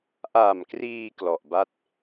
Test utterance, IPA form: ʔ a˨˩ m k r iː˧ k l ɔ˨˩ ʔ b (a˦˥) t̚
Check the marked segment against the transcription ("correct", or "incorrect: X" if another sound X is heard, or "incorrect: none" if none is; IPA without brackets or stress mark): incorrect: a˥˩